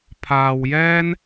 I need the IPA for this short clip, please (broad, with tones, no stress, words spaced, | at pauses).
pʰaː˧wjɛː˥n